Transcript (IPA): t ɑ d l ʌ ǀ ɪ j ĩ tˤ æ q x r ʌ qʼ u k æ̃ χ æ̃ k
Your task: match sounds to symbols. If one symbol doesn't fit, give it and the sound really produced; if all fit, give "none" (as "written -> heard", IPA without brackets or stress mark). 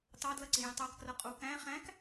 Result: x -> k